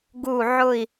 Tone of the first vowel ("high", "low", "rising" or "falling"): falling